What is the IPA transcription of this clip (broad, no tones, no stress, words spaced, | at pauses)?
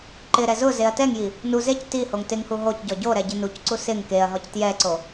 ǃɪɾɛ zʊ zeɐ̯tɛŋji | nu zec tihoŋ tɪŋhu ɦocɟɔ ɟoɾɛ ɟɪnucǀu sɪŋ keɐ̯ɦɔc tjɛǀo